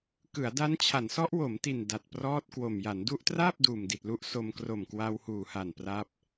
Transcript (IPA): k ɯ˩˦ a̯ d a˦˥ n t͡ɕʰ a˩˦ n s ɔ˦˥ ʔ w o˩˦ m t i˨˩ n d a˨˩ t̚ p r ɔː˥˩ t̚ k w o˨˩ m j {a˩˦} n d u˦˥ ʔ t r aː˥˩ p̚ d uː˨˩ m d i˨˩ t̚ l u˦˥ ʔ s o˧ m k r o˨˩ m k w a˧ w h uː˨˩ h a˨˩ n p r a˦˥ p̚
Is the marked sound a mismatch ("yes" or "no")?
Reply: no